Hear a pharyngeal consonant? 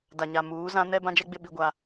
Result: no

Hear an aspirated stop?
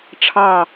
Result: yes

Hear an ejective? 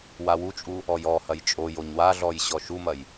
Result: yes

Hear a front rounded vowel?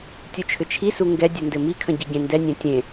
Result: yes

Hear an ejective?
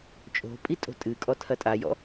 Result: yes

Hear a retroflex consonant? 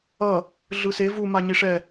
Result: yes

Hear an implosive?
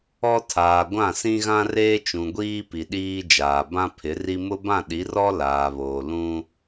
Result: yes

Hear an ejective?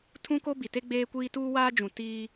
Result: no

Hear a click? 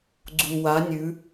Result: yes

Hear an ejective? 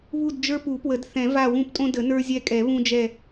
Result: yes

